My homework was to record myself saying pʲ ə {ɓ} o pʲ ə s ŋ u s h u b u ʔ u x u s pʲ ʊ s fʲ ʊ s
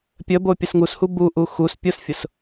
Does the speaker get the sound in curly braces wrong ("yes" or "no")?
yes